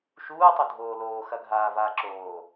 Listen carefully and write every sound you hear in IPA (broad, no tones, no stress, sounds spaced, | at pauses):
ʃ uː tˤ o dʱ oː l oː x ɐ ɡʱ aː v aː ǁ oː